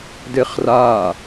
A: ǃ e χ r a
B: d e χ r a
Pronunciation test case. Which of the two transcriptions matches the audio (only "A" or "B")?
B